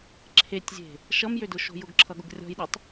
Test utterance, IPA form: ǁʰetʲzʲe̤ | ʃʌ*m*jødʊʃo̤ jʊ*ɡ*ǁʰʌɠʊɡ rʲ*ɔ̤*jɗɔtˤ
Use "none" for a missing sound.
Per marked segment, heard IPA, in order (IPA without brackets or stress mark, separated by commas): m, ɡ, ɔ̤